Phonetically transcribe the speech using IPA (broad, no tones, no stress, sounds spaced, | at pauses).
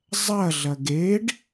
zˤ ɐ ɮ ɐ ɡ e ɖ